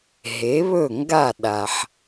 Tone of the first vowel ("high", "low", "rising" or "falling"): rising